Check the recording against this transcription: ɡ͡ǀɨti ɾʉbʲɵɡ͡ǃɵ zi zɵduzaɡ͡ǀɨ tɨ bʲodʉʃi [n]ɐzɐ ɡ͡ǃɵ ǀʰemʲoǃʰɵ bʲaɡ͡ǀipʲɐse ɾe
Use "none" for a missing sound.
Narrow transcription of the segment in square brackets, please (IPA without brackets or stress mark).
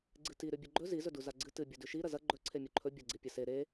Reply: ɾ